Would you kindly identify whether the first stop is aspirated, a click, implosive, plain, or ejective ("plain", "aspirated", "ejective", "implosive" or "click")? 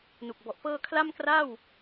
plain